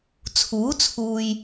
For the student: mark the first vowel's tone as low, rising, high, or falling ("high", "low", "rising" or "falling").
rising